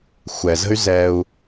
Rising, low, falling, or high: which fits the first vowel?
low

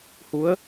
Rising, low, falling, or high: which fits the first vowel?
rising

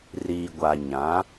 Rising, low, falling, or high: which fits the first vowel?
low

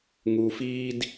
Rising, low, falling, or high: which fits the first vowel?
low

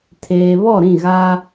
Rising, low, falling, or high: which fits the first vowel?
low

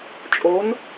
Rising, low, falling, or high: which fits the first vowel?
rising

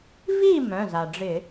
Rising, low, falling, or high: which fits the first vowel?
falling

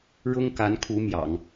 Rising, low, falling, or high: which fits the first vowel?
high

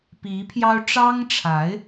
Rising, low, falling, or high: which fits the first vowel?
rising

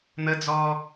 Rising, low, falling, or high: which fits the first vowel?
high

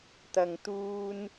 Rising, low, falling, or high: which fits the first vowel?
low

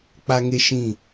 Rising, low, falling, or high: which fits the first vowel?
high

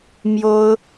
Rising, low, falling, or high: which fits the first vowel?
high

